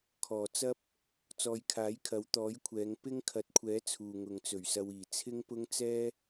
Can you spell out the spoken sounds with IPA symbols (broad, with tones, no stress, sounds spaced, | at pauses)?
kʰ ɔː˨˩ t͡s ɐ˥ p̚ | t͡s ɔː˨˧ j kʰ aː˨˥ j kʰ ɐ˨˥ w t̪ ɔː˨˥ j kʷʰ ɛː˨˧ ŋ p ɪ˥ ŋ kʰ ɐ˨˥ t̚ kʷʰ ɛː˨˥ t͡sʰ uː˨ ŋ ʊ˨ ŋ t͡s ɵ˨˩ ɥ s ɐ˧ w iː˨˩ t͡sʰ ɪ˥ ŋ p ʊ˥ ŋ t͡s ɛː˥